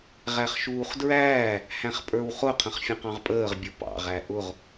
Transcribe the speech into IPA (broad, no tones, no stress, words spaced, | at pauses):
ʁæχʃuːχdɹæː | hæ̃χpʼə˞wχʊ qʰə̃χfʲə̃qɑ̃ʁpʼəːʁ bʲʊpɑ̰ ʁæʔʊʁ